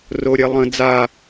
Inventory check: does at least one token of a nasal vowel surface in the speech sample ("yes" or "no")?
yes